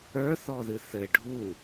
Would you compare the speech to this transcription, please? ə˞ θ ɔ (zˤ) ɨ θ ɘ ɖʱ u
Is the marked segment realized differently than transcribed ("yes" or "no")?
yes